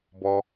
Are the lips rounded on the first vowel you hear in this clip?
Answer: yes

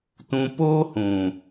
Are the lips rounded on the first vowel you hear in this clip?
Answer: yes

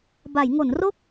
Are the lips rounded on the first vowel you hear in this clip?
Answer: no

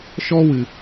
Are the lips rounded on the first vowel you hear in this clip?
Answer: yes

